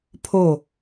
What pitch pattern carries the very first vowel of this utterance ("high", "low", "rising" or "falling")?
falling